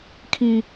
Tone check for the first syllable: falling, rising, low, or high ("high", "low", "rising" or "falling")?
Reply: high